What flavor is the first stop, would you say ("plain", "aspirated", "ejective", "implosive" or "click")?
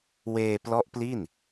plain